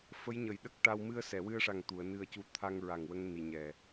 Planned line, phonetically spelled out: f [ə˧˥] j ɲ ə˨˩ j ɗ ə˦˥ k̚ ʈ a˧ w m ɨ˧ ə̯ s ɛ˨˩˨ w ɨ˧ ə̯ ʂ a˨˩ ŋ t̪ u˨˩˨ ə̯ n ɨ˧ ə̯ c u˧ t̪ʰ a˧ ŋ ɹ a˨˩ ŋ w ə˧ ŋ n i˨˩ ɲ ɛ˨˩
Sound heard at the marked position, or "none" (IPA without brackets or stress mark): ə˧˥